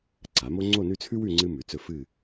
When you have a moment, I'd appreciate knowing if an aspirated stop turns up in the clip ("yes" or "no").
yes